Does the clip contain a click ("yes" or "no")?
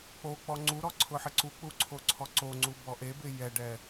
yes